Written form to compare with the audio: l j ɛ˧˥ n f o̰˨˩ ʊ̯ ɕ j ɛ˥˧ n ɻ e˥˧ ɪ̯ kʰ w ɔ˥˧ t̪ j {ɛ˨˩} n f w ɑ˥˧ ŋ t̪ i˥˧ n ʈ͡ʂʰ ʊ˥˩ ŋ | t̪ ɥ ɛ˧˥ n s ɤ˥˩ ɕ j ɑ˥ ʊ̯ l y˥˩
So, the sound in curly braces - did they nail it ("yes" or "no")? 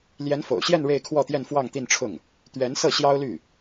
no